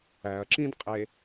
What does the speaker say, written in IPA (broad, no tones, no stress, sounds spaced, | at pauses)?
æ ɐ̯ ǁ ĩ d qʼ e